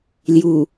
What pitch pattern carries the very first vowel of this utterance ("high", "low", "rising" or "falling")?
low